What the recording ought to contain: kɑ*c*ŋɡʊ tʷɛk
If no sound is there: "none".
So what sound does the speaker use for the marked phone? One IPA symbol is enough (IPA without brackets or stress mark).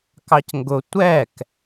c